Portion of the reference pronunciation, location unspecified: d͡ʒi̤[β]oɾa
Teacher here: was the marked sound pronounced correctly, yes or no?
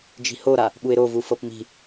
no